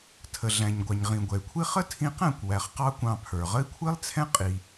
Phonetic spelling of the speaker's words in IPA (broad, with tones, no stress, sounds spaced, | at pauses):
tʰ ə˨ ɮ æ̃˨ ɲ ɡʷ ɑ˨ ɲ ʁ ĩ˨ ɡʷ ɛ˨ y̯ kʷʰ i˦ χ ə˦ tʰ ĩ˧ q æ̃˦˨ kʷ w æ˨ χ q ɑ˦ kʷ ɑ̃˧ pʰ ə˞˨ ʁ ə˦ i̯ kʷʰ i˦ lˠ t͡sʰ ɛ̃˦ qʼ i˧